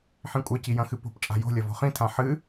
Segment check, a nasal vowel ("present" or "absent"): present